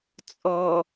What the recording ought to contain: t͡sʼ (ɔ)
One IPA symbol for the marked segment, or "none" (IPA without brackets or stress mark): ɔ